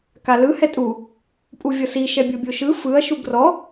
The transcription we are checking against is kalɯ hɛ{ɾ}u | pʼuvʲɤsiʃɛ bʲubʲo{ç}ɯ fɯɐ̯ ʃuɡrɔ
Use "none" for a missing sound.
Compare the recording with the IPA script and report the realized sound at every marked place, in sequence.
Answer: tʼ, ʃ

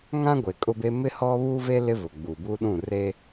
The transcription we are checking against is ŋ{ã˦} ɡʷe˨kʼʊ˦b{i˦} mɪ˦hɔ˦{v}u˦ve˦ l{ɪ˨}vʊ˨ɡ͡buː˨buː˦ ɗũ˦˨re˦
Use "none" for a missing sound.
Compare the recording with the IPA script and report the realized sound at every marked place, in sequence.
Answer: ã˦, e˦, β, ɪ˦

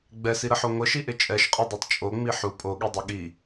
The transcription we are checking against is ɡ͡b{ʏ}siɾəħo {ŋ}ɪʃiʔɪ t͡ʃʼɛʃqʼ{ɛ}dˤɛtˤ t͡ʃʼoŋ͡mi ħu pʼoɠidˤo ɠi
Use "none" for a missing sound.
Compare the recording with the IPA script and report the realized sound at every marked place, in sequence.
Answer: ɛ, ŋʷ, ɛ

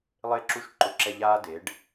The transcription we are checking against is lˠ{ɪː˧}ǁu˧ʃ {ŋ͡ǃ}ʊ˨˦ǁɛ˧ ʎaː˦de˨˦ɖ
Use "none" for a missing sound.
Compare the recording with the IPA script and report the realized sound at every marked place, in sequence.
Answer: ɪː˧, ǃ

